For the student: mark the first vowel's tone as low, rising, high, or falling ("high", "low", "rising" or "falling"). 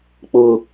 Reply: high